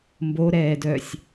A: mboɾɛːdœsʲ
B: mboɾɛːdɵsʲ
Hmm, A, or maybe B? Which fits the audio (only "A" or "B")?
A